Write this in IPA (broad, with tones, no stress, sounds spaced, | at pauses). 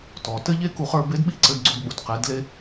t ɔ˩ t ɘ˥ ʎ e˥ k u˧ χ ə˞˧ b e˧˥ d ɓ i˥ ǀ ɘ˧ d ɡ͡ǀ o˧ d ɓ u˩ d q e˩˧ d l e˧